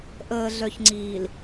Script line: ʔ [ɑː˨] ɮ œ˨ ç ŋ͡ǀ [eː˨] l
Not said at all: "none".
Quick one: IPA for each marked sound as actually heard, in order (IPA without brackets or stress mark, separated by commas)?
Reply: əː˨, iː˨